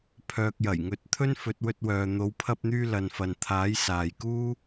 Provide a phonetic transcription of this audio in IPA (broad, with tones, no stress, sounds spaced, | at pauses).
pʰ œː˨ k̚ j ɐ˨˩ j ŋ ɵ˨˥ t̚ t̪ʰ ɵ˥ n f ɵ˨˥ t̚ w ɵ˧ t̚ w œː˨ n̪ o˨˧ w pʰ ɐ˧ p̚ n̪ yː˧ l ɐ˨ n f ɐ˨ n t̪ʰ aː˨˥ j s aː˨ j k uː˥